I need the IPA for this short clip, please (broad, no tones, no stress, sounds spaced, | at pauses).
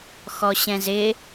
x ɔ ɕ ɛ̃ z ɪ